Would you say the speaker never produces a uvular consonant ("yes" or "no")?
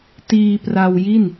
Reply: yes